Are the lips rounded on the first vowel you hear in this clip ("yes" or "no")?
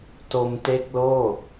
yes